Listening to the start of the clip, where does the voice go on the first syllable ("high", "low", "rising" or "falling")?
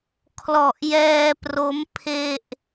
low